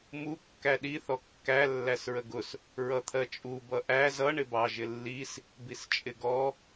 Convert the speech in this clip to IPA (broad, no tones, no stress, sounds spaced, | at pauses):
m u kː æ ɗ i θ ɔ kː æ lː æ s ɹ ə ɡ ʊ s | ɹ ʌ t̪ʰ ɜ t͡ʃʼ u b ʌ ʔ æ z ʌ ɳ ɪ b ɑ ʒ ɪ lː i s | b i s t͡ʃʼ ɪ ɡ ɔ